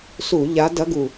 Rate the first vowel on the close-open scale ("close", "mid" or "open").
close